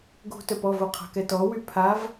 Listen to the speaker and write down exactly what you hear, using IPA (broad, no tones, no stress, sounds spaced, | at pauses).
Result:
ɡ o̤ t œ p ɔ v o qʰ a̤ k ɛ t ɔ w y pʰ a v